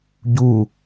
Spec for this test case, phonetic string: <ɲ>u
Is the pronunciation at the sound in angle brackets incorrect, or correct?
incorrect